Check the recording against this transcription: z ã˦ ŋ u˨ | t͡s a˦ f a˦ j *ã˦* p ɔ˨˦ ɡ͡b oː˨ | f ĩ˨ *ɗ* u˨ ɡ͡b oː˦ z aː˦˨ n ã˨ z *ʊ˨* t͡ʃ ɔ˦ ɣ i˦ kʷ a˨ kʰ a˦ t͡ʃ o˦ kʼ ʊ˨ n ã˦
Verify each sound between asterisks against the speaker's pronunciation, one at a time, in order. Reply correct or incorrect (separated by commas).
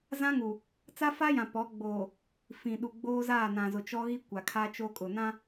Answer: incorrect, correct, correct